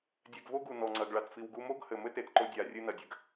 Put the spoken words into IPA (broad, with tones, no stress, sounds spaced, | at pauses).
dʲ ɛ˧ ɡ v o˦ ɡ u˨ n ɔ˨ ŋ͡ǀ ɐ˨ ɡ ɭ a˨ t f i˨ w ɡ u˧ m o˦ ɡ h ɘ˨ m ɘ˦ t e˨ t ǃ o˧ dʲ a˨ rʲ ɨ˧ n ɐ˨ dʲ ɘ˧ ɡ